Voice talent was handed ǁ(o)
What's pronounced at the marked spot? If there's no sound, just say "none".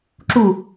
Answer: u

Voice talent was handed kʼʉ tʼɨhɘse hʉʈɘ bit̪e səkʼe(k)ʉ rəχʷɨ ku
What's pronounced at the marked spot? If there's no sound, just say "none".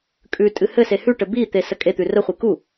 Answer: t̪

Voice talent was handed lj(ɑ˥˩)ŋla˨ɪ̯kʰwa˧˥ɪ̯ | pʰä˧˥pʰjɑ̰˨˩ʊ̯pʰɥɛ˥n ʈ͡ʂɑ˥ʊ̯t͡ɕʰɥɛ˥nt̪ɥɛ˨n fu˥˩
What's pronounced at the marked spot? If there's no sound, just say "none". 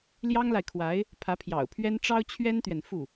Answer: ɑ˥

